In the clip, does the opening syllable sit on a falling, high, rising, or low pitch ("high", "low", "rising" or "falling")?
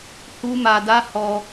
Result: high